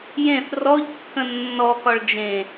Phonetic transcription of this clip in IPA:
jẽθ rɔʎkːə̃ nːɔkɒɭ d͡ʒẽ

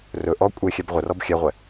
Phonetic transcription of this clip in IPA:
rɵ ʔɔ kʷʼexʲɛb ʁʷərɔb xʲɛʁʷɛ

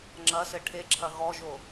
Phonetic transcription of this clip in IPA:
ŋ͡ǁɐsɘ ʈʰeǁʰɐ ɣɔʒo

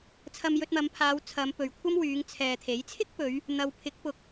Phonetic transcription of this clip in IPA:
t͡sʰɐ˧mjɵ˧t̚mɐ˨˧mpʰaː˨˧w t͡sʰɐ˨˧mpɵ˨ɥkʷʰɐ˥mwyː˨˧ŋ t͡sʰɛː˨t̪ʰe˨˥j t͡sʰɪ˥k̚pɵ˨˧ɥ | n̪ɐ˨w pʰɪ˨˥k̚pʊ˨k̚

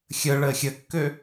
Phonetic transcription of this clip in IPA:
xʲə ɭəːxʲəkːø

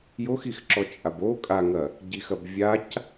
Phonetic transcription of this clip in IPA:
joxix ǁɔt͡ʃʼabo kʼaŋɐ | ɟixɐbvʲac

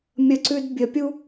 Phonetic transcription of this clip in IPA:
mʲəǀʉd bʲəpʲu

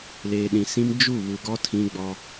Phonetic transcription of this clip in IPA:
leː˨ɗĩ˨sĩ˦m d͡ʒu˦˨βu˨ɡɔ˦ tʰĩ˦ɡ͡bɔ˦

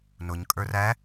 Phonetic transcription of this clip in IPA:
nʊɲ kʼə˞ræ

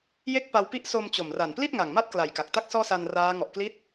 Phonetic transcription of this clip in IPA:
je˥˩k̚pa˧wpi˥˩ʔ so˧mt͡ɕo˨˩mra˨˩n pli˥˩t̚ŋa˨˩ŋma˦˥t̚ kla˨˩jka˨˩k̚ta˥˩k̚ sɔː˥˩sa˧nraː˦˥ ŋɔ˨˩ʔ kli˦˥t̚

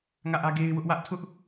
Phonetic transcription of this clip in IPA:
ŋä˦˨ʔä˦ɡe˦ɪ̯ wʊ˦ʔwä˦ʔ tʰʊ˦ʔ

